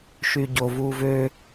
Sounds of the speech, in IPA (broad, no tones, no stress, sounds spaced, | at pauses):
ʃ yː ɟ o v uː v øː